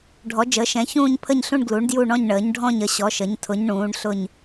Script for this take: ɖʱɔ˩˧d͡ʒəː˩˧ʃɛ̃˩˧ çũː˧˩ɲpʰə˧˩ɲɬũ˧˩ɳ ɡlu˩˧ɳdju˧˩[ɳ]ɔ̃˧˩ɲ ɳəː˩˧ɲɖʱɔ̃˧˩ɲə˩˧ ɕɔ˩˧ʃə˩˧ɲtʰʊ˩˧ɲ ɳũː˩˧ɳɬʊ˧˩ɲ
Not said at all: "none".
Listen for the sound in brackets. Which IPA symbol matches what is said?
ɳ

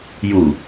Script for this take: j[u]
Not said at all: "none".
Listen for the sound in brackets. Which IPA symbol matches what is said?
u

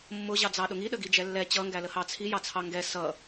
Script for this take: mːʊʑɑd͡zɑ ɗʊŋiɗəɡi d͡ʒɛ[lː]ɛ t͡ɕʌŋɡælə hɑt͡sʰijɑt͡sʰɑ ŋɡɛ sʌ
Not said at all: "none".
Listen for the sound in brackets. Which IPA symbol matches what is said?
lː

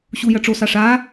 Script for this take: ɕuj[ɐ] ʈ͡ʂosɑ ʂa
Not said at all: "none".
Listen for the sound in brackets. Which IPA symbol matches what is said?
ɐ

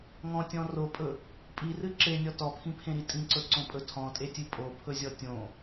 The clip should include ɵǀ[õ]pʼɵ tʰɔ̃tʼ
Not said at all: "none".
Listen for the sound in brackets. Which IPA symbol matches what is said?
õ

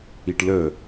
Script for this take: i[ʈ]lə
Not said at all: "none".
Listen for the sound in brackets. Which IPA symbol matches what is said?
ʈ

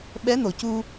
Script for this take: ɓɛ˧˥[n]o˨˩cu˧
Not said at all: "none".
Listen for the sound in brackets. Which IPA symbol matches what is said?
n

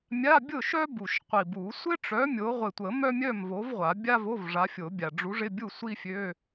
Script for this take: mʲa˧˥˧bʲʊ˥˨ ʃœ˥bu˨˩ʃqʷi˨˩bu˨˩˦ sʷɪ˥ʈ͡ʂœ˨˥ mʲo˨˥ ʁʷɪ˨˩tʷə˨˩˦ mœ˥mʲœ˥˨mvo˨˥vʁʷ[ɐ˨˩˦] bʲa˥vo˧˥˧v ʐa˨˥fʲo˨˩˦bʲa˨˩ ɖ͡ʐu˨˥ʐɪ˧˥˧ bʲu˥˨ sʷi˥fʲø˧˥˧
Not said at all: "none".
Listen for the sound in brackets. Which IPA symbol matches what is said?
a˨˩˦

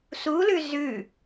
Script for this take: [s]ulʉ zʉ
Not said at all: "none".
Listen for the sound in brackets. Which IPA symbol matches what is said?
s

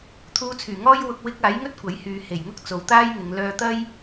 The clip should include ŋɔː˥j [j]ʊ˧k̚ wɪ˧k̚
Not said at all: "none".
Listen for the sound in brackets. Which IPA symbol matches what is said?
w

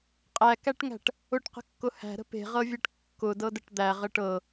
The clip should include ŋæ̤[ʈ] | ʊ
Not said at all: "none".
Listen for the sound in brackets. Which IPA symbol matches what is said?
ʈ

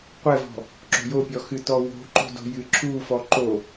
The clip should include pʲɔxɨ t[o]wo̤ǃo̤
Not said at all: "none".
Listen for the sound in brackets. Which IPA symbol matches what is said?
ɔ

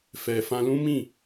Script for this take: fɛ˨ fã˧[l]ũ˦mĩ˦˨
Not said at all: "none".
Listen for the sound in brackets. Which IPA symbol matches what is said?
l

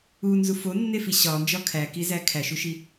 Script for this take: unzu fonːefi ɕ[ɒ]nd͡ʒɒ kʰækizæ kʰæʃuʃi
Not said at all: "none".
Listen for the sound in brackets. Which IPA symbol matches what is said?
ɒ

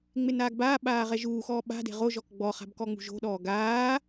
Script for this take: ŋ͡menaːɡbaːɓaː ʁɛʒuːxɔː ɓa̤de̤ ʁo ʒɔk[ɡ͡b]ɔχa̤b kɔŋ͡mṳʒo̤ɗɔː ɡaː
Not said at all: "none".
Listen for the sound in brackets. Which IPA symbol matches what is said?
ɡ͡b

